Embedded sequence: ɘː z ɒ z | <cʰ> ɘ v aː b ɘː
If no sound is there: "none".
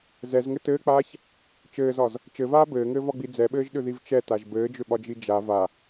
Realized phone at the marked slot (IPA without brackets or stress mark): t͡ʃ